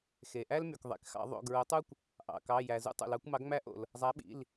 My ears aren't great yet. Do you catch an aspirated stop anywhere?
no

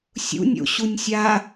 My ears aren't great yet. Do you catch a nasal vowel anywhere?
no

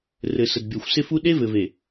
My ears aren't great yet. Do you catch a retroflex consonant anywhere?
no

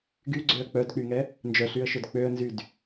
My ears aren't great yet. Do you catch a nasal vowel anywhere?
no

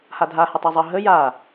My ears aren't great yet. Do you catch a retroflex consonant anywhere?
no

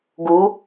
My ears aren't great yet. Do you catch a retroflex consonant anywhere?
no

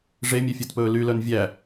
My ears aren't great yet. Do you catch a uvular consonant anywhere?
no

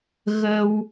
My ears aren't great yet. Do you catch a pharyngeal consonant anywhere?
no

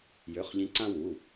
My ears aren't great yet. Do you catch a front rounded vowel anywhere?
yes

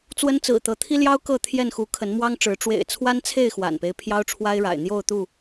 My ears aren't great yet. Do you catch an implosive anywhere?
no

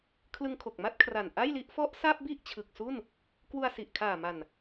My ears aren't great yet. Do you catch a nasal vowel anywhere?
no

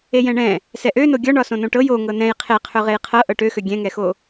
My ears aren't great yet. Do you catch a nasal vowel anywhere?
yes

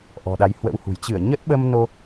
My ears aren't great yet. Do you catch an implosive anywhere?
yes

